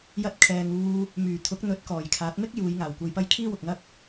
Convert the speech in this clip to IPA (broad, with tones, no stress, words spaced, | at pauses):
jɐ˧t̚kʰɛː˨ŋuː˧ | myː˨˩t̪ʰʊ˨˥k̚ n̪ɵ˨˥t̚kɔː˨˩jkʰaː˨˥t̚ mɪ˥k̚ juː˨˧jŋaː˨˩wkʷɐ˧jpɐ˥j kʰiː˥wʊ˨k̚ŋɐ˥k̚